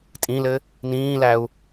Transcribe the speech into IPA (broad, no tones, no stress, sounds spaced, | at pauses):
tʼ ĩ l ɘ | n ĩː l æ u̯